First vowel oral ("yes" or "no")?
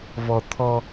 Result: yes